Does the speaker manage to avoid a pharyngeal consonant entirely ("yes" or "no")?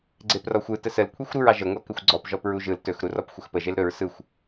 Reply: yes